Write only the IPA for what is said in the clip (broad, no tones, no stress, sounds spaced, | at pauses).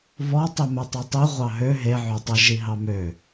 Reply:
β ɔ tˤ i m ɛ tˤ i tˤ i ʁʷ ɑ ɦ ø ɦ e ʕ ø tˤ i ʒ i ɦ ɑ m ø